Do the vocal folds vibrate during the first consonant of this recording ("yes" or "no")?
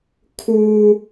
no